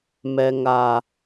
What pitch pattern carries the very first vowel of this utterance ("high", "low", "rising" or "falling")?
low